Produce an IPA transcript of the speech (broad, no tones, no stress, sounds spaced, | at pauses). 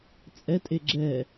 t͡sʼ ɛ tʼ e ɡ͡ǁ ɛ